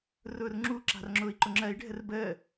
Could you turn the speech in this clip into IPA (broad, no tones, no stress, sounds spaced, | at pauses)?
r ʊː r ŋ͡ǁ u ǁ a̤ r ŋ͡ǁ ʊː i̯ ǃ ʊ ŋ͡ǁ ɜ i̯ ɖʱ ə r b əː